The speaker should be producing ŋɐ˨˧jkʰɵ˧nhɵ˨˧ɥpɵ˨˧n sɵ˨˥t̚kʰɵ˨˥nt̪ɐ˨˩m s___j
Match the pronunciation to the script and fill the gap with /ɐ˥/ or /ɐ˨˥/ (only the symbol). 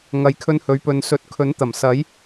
ɐ˨˥